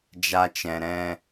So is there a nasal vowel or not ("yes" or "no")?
yes